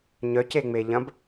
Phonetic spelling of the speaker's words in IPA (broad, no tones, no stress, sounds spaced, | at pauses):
ɲ œ c e ŋ͡m e ʎ ɐ̃ b